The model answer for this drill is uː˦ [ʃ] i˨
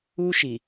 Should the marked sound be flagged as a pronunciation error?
no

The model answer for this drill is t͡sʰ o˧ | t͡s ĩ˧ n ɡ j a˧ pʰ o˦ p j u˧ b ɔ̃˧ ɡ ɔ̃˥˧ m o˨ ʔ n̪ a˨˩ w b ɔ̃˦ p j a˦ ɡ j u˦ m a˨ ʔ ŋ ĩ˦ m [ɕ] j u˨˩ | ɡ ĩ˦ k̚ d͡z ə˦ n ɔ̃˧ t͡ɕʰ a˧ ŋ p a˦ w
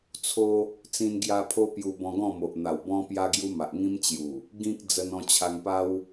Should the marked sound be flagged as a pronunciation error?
yes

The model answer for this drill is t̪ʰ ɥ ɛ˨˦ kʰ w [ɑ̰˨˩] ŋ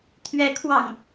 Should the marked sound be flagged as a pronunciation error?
no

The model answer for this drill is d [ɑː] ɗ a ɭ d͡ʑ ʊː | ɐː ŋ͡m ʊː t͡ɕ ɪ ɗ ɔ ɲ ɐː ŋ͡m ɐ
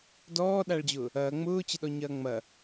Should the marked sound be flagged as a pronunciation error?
yes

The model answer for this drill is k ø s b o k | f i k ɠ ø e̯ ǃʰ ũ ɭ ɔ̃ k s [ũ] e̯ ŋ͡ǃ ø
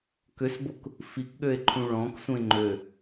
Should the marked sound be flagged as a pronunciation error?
no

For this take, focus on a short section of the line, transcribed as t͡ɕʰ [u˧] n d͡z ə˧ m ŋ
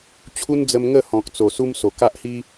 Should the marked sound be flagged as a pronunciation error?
yes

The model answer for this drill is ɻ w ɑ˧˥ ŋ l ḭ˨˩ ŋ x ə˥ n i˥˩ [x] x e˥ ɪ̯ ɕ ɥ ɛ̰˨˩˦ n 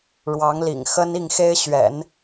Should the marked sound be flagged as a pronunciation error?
yes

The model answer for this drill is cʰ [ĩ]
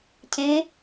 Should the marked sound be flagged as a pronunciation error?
yes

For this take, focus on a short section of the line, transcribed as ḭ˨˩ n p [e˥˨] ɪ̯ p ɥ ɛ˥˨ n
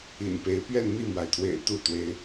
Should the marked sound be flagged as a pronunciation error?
yes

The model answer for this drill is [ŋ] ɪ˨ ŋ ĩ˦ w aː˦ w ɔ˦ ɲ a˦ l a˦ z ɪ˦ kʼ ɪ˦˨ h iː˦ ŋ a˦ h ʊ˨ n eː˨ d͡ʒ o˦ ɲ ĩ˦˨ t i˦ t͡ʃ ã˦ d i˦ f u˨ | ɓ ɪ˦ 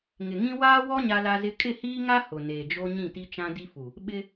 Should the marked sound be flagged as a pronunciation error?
no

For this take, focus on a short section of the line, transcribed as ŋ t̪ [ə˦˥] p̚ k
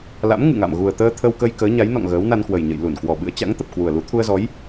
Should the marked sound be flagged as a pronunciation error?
yes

